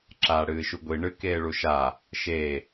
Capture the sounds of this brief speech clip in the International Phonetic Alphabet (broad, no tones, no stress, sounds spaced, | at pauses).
ǁ aː ɽ ɨː ʃ u ɡʷ i ɳ ɨ k eː ɭ u ʃ a | ʃ e